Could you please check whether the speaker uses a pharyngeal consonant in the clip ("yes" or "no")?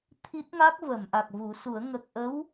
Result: no